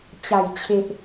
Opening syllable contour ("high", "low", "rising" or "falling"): low